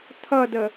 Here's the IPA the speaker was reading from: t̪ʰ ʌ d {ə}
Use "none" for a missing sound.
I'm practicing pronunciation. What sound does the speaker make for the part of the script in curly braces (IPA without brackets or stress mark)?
ə